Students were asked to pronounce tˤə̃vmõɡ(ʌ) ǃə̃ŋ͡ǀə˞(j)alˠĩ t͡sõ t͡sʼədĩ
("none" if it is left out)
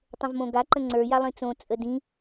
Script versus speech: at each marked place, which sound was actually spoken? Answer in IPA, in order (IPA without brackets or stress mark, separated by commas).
a, j